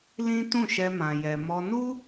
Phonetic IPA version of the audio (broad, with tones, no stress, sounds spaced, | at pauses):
l ĩ˦ t ũ˦˨ ʃ ɛ˧ m ã˨ j ɛ˨ m ɔ˧ n u˦